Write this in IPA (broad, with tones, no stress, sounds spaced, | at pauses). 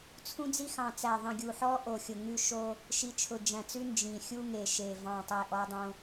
t͡sʰ ũ˦ d͡z i˦ x ɑ̃˨˩ t͡s æ˨˩ ðˤ ĩ˨˩ ɡʲ u˨˩ ħ ɔ˦ ʔ o˨˩ xʲ ʊ˨˩ ŋ ʉ˦ ʃ o˦ | ʃ i˨˩ t͡ʃʰ ʊ˨˩ d͡ʒ æ̃˨˩ t͡s ʉ˦ n d͡ʒ ĩ˨˩ xʲ u˦ ŋ e˨˩ ʃ e˨˩ v ɑ̃˨˩ tˤ e˨˩ ʔ ɔ˦ dˤ õ˦